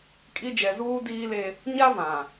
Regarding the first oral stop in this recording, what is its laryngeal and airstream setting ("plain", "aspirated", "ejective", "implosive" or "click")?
ejective